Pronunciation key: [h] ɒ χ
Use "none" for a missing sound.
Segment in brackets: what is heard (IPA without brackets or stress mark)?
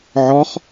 ʕ